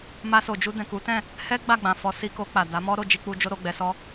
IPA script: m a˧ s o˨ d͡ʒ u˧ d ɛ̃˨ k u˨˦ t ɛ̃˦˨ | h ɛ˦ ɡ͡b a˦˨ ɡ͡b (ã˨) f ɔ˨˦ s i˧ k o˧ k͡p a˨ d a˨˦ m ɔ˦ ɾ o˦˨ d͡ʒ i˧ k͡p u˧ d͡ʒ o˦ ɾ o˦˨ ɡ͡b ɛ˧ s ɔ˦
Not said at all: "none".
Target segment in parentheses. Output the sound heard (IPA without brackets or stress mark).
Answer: ã˨